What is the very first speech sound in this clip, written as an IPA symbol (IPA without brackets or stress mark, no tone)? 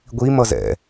ɡʷ